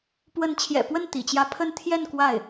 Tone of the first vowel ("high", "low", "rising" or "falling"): rising